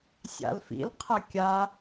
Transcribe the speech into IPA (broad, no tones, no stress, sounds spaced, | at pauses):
sʲ a̰ l f ḭ l qʰ ɐ kʲ a